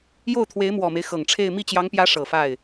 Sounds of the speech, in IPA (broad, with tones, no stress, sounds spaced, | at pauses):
j o˥˩ ʊ̯ t̪ʰ w e˧˥ ɪ̯ m w ɔ˨˩ m e˦ ɪ̯ x ɤ˨˩ ŋ ʈ͡ʂʰ e˥˧ ɪ̯ m i˥˩ t͡ɕ j ɑ˧˥ ŋ p j ä˧˥ ʂ ɤ˨˩ f a˥˩ ɪ̯